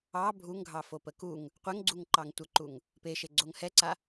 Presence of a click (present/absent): present